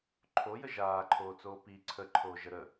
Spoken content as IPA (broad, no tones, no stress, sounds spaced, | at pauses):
ǃʰ o j ə ʒ aː ǃʰ oː t͡s oː p i ǀʰ ə ǃʰ oː ʒ ə ɾ ə